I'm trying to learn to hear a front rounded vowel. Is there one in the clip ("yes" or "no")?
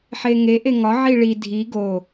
no